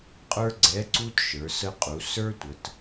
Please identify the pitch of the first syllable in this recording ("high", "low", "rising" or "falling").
high